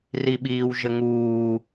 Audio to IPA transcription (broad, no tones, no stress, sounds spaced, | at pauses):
r i ɓ iː w ʒ ə ŋ uː